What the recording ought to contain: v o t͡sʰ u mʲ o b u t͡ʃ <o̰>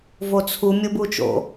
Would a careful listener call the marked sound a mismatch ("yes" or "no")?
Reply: no